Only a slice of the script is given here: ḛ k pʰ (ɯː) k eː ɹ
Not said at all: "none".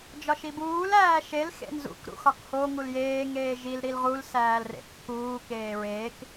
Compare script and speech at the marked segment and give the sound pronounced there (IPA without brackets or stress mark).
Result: uː